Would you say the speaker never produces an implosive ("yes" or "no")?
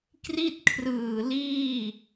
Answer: yes